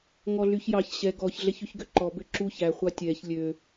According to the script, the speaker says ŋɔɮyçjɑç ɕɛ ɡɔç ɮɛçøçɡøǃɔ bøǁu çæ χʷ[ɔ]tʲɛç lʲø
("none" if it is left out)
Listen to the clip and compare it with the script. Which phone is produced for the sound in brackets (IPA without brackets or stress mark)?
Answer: ɑ